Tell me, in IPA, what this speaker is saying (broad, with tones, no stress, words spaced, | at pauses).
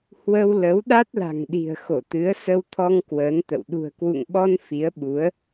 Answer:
hwə˧wlə˨˦w ɗa˦˥t̚la̤˨˩ŋɗi̤˨˩ə̯xo˧˩ t̪ɨ˨˦ə̯sə˧wt̪ʰɔ˧ŋ kwəː˨˦nt̪ə̰˧˨w ɗṳ˨˩ə̯kwṵ˧˨ŋɓɔ˧n fi˨˦ə̯ɓu˨˦ə̯